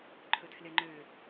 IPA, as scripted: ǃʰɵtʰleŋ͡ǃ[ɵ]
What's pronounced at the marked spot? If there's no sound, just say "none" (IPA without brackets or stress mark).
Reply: ø